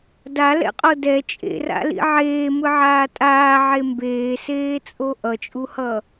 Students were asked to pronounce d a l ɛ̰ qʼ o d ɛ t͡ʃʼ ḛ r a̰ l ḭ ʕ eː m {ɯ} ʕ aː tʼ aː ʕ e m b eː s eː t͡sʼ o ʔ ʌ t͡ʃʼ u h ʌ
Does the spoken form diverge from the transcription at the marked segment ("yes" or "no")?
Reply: no